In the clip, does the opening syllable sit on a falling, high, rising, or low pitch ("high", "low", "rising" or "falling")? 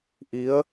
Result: rising